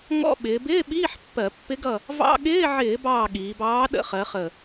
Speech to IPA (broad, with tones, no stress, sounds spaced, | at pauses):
ŋ ɔ̰˧˥˧ ɓ ɪː˩˧ b ɪː˧˥˧ ɓ iː˧˥˧ ħ pː ɜ˧˩˧ pː ɪ˧˥ ɡ ʌ˦˨ | v ɑ̰˧˥˧ ɠ ɪː˧˥˧ ʕ ɪː˧˩˧ b ɑː˦˨ ɠ iː˩˧ b ɑː˧˥ ɗ ə̰˧˥˧ χ ɜ˩˧ χ ə˨˩